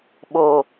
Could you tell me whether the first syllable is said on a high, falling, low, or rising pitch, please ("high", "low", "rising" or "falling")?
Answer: low